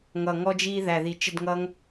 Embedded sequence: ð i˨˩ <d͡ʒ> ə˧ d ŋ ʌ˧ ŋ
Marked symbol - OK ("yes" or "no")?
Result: no